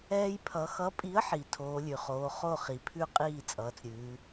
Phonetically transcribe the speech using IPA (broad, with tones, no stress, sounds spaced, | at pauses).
ɛː˦ j pʰ ʌ˨˦ x ʌ˨˦ pʼ i˨˦ ə̯ ħ i˩ tʰ oː˨˦ lʲ ʉ˩ χ oː˨˦ χ o˥˩ χ i˩ pʰ ʉ˥˩ qʼ iː˥˩ t͡sʼ ʌː˨˦ t͡s ɾʲ ʉː˨˦